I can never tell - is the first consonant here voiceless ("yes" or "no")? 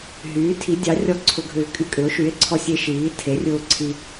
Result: no